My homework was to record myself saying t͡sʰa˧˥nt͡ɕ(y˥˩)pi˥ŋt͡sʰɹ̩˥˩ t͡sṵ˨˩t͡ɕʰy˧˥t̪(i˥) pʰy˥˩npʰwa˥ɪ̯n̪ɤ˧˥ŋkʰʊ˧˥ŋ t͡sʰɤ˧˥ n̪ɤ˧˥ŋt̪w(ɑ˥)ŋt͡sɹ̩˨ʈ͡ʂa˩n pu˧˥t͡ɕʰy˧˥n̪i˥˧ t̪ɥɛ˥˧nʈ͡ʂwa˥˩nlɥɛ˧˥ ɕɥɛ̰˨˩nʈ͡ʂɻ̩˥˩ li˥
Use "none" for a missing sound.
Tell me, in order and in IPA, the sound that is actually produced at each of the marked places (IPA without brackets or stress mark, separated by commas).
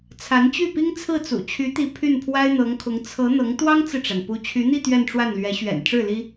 y˥˩, i˧˥, ɑ˥